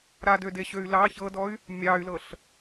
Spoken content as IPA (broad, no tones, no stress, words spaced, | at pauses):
ɾadødeɕøy̯ lɑ çɤdɔy̯ | mʲɑy̯lɤɬ